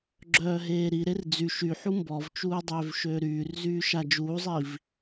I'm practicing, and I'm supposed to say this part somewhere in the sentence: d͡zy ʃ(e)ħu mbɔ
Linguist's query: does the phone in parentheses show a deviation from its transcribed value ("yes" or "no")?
yes